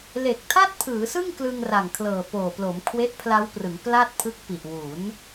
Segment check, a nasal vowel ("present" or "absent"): absent